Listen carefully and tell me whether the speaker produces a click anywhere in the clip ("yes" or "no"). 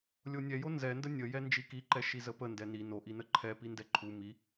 yes